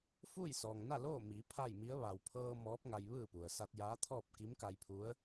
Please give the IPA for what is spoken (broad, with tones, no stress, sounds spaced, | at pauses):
f uː˥˨ j s ɔː˩ ŋ n a˥˨ l oː˥˨ m iː˩˧ pʰ a˥˨ j m i˧˥ ə̯ ʋ a˩ w pʰ ɤː˧ m ɔː˧˥ p̚ ŋ a˧ j ʋ ɯː˥˨ p u˩ ə̯ s a˧ t̚ j aː˧˥ t̪ʰ ɔː˥˨ p̚ k i˧˥ m k a˧ j pʰ u˧˥ ə̯